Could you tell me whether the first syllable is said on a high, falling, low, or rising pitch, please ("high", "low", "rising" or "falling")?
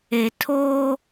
low